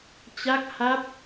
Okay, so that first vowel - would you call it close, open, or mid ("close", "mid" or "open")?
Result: open